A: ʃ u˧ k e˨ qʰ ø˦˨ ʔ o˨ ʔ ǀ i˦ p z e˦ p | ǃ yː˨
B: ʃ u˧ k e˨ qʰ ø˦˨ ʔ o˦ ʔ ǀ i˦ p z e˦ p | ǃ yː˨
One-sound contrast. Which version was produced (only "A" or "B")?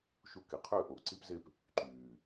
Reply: A